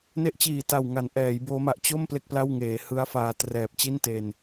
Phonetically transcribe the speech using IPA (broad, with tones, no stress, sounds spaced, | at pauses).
n e˦˥ ʔ t͡ɕ iː˨˩ t a˨˩ w ŋ a˩˦ n ʔ ɛː˩˦ j b oː˦˥ m a˨˩ ʔ t͡ɕ o˥˩ m p l e˥˩ k̚ p l a˥˩ w ŋ eː˩˦ h ɯ˦˥ a̯ f aː˧ t r ɛː˨˩ p̚ t͡ɕ i˥˩ n t e˧ n